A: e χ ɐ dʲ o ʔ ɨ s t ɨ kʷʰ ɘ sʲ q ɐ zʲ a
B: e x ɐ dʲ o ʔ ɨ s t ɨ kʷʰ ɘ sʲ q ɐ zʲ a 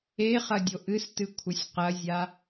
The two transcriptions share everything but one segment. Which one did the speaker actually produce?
A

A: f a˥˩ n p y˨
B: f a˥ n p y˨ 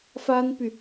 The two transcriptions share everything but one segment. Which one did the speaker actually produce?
B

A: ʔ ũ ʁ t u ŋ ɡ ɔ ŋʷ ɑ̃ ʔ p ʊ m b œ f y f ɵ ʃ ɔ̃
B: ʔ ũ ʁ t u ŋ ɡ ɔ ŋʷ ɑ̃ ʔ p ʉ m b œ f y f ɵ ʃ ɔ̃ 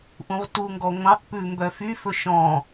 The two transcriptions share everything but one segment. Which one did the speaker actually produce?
B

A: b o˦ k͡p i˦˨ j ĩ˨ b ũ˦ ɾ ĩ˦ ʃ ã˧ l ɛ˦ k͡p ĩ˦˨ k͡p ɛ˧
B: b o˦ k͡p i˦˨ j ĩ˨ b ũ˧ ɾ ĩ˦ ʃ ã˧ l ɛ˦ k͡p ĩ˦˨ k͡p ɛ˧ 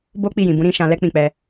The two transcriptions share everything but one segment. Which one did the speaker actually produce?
B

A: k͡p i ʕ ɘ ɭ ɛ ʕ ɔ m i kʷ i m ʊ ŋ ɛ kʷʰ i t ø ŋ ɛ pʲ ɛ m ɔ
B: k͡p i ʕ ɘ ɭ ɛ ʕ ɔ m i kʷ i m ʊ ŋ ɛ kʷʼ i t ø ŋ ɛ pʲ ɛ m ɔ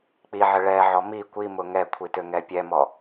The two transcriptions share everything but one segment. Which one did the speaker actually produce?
A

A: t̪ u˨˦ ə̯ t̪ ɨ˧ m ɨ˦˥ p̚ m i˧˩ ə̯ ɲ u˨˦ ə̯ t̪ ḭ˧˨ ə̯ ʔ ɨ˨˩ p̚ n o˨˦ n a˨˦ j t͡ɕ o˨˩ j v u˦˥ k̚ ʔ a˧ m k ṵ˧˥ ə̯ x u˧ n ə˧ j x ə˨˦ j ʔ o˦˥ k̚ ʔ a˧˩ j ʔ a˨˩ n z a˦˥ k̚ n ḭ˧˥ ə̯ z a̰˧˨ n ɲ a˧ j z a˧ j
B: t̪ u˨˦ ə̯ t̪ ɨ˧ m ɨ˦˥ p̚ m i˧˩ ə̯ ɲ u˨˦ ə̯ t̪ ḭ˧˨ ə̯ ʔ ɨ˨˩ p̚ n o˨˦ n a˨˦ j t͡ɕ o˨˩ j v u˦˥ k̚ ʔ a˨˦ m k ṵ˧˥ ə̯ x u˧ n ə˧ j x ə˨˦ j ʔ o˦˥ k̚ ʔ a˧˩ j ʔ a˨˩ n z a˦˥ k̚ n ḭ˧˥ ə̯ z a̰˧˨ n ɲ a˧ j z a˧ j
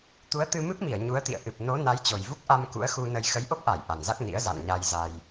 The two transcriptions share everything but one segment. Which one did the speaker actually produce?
A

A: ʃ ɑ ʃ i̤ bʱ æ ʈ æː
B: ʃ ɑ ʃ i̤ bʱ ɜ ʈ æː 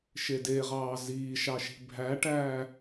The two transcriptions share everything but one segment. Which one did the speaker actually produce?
A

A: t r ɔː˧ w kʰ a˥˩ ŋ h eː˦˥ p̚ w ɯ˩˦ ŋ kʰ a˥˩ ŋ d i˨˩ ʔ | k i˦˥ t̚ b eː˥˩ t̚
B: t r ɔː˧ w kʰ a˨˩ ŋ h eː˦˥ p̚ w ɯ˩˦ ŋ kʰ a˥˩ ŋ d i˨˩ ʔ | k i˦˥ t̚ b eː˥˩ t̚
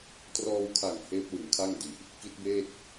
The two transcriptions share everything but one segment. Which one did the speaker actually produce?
B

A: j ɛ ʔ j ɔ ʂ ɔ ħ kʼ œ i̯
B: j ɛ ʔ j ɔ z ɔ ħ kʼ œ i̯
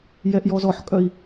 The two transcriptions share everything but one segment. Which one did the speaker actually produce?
B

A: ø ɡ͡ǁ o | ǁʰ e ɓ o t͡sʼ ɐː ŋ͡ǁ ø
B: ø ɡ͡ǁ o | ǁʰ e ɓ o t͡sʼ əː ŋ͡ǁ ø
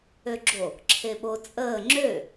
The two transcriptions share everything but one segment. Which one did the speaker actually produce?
B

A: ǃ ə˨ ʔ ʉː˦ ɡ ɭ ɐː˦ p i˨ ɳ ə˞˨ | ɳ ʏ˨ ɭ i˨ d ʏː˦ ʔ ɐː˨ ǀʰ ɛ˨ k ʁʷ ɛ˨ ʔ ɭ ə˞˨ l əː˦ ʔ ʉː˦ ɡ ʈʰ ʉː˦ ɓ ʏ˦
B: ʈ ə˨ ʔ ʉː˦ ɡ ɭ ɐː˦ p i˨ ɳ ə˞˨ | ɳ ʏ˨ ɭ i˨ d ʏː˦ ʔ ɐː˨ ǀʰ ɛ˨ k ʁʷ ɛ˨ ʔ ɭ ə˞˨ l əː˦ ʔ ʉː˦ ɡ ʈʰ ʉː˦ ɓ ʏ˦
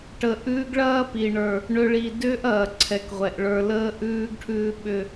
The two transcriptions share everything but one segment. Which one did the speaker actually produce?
B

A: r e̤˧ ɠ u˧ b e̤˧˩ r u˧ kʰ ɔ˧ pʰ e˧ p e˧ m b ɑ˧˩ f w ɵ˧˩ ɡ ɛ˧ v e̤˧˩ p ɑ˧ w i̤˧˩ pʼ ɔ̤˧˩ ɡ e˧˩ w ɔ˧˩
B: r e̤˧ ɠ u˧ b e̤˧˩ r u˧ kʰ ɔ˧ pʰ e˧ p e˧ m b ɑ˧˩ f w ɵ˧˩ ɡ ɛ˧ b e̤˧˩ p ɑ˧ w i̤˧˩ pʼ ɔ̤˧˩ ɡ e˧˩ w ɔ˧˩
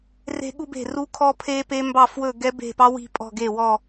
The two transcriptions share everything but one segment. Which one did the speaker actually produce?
B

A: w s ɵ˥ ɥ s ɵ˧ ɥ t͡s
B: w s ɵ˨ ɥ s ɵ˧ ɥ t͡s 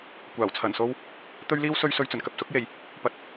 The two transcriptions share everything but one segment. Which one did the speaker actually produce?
A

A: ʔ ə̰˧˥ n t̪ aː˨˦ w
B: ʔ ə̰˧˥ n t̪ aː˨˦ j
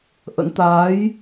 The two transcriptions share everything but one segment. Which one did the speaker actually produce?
B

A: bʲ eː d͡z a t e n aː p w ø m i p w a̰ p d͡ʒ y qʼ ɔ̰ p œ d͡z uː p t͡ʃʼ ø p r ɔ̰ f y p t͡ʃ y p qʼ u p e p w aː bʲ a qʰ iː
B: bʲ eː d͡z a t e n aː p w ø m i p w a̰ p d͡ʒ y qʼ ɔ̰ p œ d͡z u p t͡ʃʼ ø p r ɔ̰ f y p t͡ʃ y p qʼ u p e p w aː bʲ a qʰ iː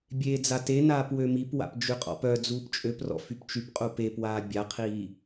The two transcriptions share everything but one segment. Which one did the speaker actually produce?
A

